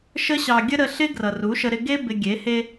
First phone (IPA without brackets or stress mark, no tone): ʃ